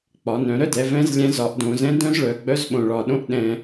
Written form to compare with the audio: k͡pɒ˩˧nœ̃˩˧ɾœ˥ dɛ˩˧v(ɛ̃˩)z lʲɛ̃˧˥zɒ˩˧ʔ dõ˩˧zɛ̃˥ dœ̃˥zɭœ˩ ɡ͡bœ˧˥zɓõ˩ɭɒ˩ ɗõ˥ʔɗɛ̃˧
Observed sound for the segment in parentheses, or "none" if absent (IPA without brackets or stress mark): ɛ̃˧˥